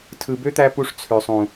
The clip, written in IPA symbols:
tʰ ɯ˨ b ø˦ t̪ æ˧ p u˧ ʂ t͡sʰ ø˨ sˤ ũ˨

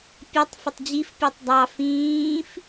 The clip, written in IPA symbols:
pʲ ɔ tˤ f ə tˤ d͡ʑ i f pʲ ɔ tˤ dˤ ɑ f ĩː f

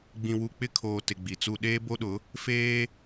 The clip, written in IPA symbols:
ɡ͡b ĩ˨ w u˨ k͡p ɪ˦˨ kʰ oː˨ t ɪ˨ ɡ͡b i˨ t͡s u˦ ɗ eː˦ b o˦ ɗ ʊ˨˦ | f eː˦

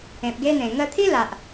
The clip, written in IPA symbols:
ẽ˨ p̚ ɡ e˦ n̪ ẽ˨˩ ŋ ə˧ t̪ʰ i˦ l a˨ ʔ

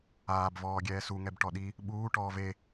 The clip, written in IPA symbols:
aː b v ɔː ɡʲ ɛː s u ŋ ɛ b ʈ ɔ ɗ i | ɓ uː ʈ ɔː v e

